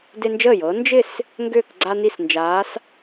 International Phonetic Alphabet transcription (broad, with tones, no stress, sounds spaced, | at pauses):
d e˦ n d͡ʒ əː˥˩ j ɤː˨˥ n d͡ʒ ɪ˥˩ s | ŋ ɡ ʏː˥˩ k ɡ͡ǀ a˦ n i˥˩ s n d͡ʒ aː˨˥ s